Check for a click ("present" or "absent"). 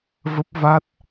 absent